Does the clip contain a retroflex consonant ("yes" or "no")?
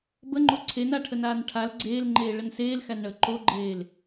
yes